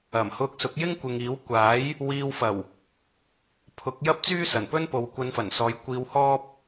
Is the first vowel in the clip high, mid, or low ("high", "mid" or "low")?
low